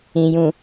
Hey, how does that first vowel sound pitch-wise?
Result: low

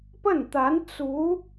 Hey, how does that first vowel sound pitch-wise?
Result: falling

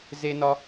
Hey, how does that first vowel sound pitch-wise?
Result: high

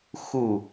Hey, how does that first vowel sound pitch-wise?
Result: falling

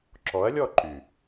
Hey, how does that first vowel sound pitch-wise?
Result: rising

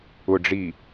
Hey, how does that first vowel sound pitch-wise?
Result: low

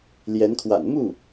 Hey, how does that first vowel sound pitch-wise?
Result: rising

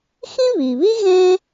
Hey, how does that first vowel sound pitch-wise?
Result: high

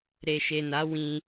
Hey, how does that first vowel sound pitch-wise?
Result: low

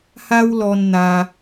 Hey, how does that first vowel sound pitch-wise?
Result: high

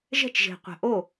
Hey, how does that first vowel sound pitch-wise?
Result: falling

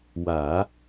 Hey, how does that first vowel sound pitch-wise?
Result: low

